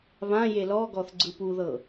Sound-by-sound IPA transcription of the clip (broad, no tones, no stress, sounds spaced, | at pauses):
β ã j e l ɔ ɡ ɔ θ ɡ͡ǀ ɯ p u ð ɤ